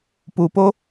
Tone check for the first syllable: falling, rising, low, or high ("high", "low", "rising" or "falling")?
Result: low